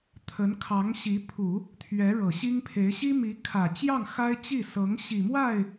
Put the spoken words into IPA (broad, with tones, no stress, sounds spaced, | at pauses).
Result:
t̪ʰ ə˧˥ n kʰ ɑ˧˥ ŋ ɕ i˧˥ pʰ u˨˩˦ | t̪ʰ ɥ ɛ˧˥ ɻ ɤ˨˩ ɕ i˥ ŋ pʰ e˧˥ ɪ̯ ɕ i˥ m i˧˥ kʰ ä˨˩ t͡ɕ j ɑ˥˩ ŋ x a˥ ɪ̯ t͡ɕ i˥˩ s ɤ˧˥ ŋ ɕ i˨˩ m w a˥˩ ɪ̯